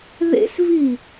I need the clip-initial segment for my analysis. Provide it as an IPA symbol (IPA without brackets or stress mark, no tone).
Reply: ð